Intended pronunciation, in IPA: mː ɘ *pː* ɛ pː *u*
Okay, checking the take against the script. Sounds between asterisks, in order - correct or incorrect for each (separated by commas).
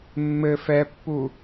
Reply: incorrect, correct